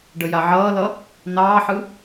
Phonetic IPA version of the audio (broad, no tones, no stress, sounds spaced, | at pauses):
ɖ ə j a ʕ ʌː l ʌ | n ɑː ħ ɯ